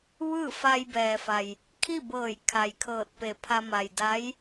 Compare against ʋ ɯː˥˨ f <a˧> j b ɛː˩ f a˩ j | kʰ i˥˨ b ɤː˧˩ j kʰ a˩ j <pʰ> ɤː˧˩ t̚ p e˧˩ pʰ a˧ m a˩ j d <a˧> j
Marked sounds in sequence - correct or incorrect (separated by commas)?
correct, incorrect, incorrect